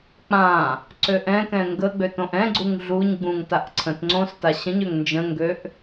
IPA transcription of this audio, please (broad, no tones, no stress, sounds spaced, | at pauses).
k͡p ã | ǀ ø ʔ ɛ̃ k ɛ̃ ŋ ɡ ə ɡ͡b ø t õ ʔ ɛ̃ ɡ͡ǀ u ŋ ɮ u ɲ ɡ͡b ũ ŋ t a ʔ ǀʰ ə̃ t ŋ͡ǀ õ s t a ɕ ə̃ ɲ ø ŋ n d͡ʒ ə̃ ŋ ɡ ø ʔ